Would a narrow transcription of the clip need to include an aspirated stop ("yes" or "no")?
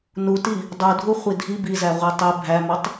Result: no